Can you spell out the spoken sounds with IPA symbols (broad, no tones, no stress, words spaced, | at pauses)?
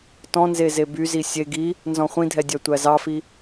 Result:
tɔ̃nze zebyzi sʲe ɡi | nzɔ̃χʷĩdʱɛ dʲœtʷæzɑfi